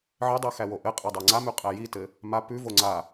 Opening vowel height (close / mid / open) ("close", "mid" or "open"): mid